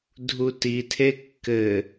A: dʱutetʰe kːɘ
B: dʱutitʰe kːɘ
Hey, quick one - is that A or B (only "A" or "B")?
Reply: B